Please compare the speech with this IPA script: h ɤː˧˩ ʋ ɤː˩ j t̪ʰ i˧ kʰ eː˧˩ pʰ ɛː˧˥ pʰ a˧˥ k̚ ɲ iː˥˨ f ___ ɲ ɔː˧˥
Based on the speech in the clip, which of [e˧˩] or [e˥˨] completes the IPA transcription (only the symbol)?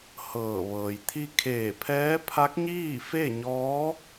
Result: e˥˨